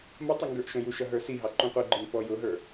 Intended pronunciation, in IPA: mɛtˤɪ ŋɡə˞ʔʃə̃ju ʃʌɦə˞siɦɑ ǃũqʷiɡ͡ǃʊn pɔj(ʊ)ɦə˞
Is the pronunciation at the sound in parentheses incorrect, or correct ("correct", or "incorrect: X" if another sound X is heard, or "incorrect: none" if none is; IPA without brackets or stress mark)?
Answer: correct